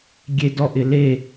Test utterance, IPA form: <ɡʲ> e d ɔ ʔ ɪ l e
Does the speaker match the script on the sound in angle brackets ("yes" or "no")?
yes